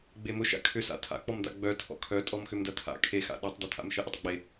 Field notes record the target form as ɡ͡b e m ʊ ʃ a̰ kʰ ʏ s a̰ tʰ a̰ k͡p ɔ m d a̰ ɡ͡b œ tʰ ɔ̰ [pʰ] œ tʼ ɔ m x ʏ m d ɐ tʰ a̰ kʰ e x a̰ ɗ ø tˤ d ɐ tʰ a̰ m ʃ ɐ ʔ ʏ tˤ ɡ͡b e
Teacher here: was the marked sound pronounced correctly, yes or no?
no